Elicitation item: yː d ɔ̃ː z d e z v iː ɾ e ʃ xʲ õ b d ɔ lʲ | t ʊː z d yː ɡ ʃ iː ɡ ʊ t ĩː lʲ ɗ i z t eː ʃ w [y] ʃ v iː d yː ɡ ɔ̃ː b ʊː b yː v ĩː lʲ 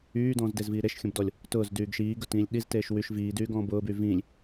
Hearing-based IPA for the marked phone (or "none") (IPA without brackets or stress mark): y